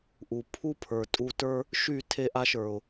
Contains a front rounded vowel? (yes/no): yes